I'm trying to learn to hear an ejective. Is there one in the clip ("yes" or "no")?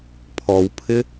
no